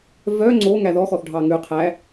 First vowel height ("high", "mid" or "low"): mid